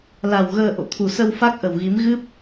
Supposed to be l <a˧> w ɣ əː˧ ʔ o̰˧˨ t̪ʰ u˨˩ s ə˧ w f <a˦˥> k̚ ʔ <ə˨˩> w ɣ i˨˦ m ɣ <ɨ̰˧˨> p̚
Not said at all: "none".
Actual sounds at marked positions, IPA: a˨˩, a˦˥, ə˨˩, ɨ˦˥

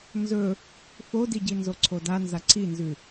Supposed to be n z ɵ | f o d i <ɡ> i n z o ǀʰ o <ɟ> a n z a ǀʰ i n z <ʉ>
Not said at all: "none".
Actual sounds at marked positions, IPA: ɟ, d, ʉ

